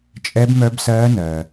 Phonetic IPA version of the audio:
t͡ʃʼɛ˦˥bmœ˦˥bsɜː˦˥nɜ˨

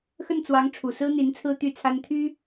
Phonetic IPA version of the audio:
xə˥˩nt͡swɑ˧˥ŋ ʈ͡ʂʰu˨˩sɹ̩˥n̪i˧˥n t͡sʰɹ̩˥t̪y˥˩t͡sʰa˥n t̪ʰy˥

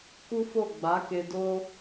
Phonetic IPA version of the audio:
ku˦fo˦˨ ɡ͡ba˨˦ke˧ do˦

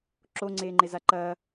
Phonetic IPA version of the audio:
ǁoŋ͡ǀeːŋ͡ǃeza ǃɐː

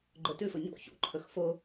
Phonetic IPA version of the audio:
ɡ͡ǃɵtʉfɵ ɲo̰ çṵǃʰɵx fo

